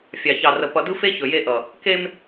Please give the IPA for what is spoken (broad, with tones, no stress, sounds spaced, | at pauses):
fʲ ɑ˨ ç ɑ˨ r ə˨ p ʌ˨ d ɯ˦ f e˦ ç ɵ˨ j e˦ ʔ ʌ˨ | k e˦ m